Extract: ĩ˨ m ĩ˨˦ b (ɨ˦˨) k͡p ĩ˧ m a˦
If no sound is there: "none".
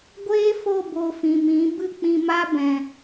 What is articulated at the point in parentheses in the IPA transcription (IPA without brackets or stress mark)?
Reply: ɨ˦˨